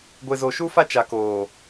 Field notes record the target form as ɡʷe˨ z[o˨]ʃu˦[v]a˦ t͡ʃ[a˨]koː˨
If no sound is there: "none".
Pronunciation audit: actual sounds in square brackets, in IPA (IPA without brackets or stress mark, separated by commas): o˨, f, a˨